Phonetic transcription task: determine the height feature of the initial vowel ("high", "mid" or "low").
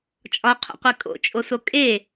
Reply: low